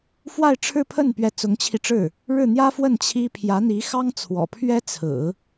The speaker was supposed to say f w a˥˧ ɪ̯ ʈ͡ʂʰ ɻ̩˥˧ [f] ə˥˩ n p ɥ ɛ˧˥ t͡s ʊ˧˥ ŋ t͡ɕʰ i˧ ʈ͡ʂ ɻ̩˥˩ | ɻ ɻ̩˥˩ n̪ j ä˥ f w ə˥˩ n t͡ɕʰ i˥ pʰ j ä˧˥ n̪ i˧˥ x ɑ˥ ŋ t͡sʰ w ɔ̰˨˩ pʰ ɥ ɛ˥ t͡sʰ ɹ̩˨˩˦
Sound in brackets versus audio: incorrect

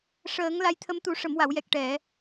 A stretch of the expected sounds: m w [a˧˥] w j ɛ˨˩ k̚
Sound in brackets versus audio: incorrect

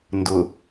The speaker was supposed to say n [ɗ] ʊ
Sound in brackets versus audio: incorrect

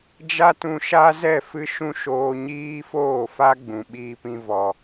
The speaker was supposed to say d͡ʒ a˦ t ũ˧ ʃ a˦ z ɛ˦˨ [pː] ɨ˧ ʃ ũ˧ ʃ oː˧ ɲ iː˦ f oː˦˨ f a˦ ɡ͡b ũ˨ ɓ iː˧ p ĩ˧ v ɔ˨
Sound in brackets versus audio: incorrect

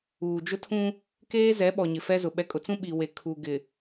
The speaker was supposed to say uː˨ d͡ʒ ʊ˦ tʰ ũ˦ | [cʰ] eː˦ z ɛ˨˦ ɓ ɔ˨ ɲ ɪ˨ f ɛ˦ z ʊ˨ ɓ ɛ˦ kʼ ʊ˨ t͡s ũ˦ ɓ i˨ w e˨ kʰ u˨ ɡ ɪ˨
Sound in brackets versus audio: incorrect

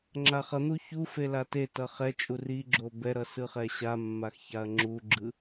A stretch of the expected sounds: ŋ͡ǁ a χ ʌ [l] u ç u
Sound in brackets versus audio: incorrect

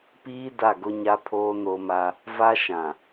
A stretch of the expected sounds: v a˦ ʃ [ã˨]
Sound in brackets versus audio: correct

